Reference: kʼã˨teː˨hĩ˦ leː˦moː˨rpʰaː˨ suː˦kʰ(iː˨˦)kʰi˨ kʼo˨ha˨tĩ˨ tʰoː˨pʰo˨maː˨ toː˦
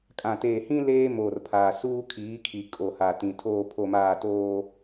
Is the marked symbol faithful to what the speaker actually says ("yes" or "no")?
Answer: yes